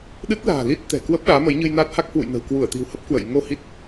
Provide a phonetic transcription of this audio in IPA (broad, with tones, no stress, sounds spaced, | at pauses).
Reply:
ɗ ɨ˦˥ t̚ l a̤ː˨˩ l i˦˥ t̚ t̪ ɛ̤˨˩ k w ə˦˥ p̚ ɗ aː˨˦ m ə˨˦ j ɲ ɨ˧ j n a˦˥ t̚ h a˦˥ k̚ h w ṵ˧˨ j n ə̤˨˩ w k w u˧˩ ə̯ t̪ i̤˨˩ w h ə˦˥ p̚ k w ə̰˧˨ j ŋ o˧ h i˦˥ t̚